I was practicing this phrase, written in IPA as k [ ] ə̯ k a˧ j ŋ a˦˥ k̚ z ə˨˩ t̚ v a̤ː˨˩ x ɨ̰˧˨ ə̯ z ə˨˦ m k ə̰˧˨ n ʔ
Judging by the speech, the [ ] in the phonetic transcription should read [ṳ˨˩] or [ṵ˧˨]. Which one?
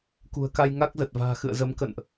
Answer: ṳ˨˩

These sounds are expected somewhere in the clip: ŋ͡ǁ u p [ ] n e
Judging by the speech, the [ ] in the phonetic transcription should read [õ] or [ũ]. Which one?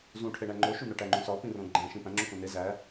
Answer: õ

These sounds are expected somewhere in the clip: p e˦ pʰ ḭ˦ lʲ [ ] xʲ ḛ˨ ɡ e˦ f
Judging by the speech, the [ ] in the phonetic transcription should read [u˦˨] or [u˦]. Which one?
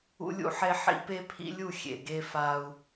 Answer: u˦˨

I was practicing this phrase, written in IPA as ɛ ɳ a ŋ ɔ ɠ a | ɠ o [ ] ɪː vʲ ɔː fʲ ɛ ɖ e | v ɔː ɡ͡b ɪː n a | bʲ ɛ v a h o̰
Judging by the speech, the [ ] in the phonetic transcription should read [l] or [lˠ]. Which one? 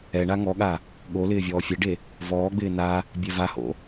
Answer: l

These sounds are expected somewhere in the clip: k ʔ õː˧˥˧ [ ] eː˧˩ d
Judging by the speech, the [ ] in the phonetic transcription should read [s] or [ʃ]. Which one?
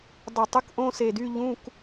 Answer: s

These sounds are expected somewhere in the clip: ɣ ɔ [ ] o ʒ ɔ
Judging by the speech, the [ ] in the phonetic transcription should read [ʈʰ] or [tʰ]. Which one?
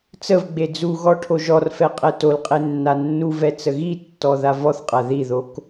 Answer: ʈʰ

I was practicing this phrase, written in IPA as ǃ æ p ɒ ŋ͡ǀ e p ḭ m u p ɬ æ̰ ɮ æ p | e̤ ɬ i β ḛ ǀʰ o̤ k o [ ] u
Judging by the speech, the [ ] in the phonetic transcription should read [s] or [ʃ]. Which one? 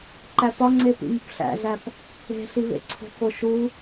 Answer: ʃ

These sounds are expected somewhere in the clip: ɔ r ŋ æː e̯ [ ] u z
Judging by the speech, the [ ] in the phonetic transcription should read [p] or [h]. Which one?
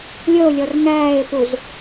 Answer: p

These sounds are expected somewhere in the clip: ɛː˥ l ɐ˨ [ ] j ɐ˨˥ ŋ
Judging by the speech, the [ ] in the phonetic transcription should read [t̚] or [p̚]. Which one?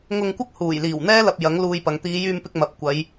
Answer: p̚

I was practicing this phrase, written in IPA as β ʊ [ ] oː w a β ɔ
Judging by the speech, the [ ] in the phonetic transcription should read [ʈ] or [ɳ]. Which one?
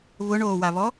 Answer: ɳ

